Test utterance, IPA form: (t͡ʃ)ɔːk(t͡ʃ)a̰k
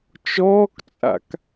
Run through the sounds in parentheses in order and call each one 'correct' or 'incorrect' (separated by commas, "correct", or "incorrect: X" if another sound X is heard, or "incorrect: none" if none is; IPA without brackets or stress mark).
correct, incorrect: t͡sʼ